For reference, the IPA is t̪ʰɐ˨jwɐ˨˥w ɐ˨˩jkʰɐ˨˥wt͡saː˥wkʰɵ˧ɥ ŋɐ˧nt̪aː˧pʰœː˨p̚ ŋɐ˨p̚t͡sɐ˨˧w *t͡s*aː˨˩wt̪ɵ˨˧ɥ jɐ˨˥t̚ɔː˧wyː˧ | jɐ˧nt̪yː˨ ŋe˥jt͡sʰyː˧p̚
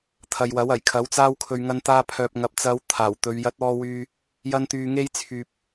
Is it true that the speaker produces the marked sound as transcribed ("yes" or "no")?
no